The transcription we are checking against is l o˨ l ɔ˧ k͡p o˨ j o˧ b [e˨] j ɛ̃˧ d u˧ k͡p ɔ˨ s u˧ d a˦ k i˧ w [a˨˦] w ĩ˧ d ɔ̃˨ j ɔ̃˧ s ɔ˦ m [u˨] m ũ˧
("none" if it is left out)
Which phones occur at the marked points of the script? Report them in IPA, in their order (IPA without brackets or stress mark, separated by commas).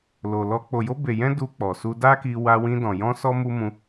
e˨, a˧, u˦